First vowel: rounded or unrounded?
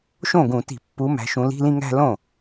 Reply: rounded